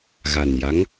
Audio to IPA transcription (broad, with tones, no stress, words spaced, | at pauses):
ɣa˨˩nja˧˥ŋ